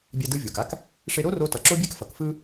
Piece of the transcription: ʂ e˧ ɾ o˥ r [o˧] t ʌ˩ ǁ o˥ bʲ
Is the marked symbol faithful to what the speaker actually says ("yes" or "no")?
yes